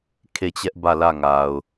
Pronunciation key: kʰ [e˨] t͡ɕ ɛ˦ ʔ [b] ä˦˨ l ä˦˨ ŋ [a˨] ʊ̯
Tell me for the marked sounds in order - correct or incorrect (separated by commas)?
incorrect, correct, correct